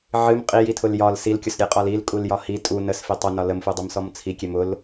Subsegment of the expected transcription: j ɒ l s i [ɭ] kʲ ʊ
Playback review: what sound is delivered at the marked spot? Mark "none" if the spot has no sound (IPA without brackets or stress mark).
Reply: l